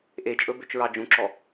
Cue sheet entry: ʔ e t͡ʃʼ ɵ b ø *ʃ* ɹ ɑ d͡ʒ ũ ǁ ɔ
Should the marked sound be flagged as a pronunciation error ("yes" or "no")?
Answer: yes